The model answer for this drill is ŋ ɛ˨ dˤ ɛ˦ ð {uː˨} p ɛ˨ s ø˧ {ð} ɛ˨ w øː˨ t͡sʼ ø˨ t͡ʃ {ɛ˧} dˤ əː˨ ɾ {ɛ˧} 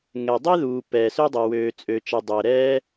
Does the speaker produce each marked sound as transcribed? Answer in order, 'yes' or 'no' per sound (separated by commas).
yes, no, no, no